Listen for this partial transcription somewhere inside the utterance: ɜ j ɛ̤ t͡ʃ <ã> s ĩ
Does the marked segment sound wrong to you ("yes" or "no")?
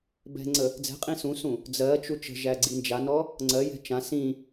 no